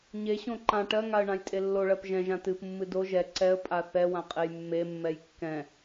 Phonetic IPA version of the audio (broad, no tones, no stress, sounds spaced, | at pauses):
ɲ e ɕ õ ǃ ã ʈ ɜ ŋ a ə̯ ɳ ã j tʼ e lː o ɭ ɜ p ʒ ɛ̃ ʒ ã t ɨ p mː ɨ d o ʒ ɛ ǀ ɛ ə̯ pʼ a θ ɛ w ã qʼ e j mː e mː ɛ j kː ɛ̃